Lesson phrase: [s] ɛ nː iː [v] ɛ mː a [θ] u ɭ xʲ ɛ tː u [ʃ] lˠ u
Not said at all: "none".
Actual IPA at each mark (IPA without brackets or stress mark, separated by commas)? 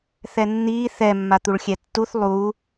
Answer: θ, θ, t̪, θ